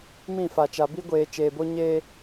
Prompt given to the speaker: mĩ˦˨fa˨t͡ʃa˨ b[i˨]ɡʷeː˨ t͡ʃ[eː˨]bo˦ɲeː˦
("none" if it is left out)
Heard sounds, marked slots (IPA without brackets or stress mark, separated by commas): i˦, eː˨